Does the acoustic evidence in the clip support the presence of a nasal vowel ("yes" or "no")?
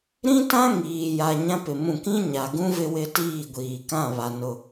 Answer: yes